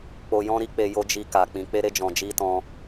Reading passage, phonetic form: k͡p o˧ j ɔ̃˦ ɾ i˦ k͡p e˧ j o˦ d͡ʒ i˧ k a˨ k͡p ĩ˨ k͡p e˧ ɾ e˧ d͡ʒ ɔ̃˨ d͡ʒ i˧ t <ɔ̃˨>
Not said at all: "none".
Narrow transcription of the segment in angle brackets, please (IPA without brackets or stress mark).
ɔ̃˧